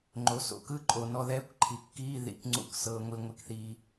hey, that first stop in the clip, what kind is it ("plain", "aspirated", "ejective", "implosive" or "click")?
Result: click